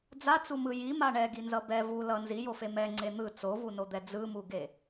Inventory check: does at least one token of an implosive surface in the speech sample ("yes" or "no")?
no